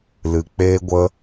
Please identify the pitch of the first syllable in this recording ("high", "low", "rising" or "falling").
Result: low